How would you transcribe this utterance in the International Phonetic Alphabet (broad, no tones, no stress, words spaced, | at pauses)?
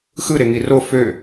xɯ ɾeŋiro fø